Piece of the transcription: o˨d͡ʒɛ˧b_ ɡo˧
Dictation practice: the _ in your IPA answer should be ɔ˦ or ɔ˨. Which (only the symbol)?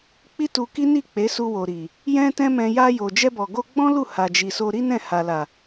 ɔ˨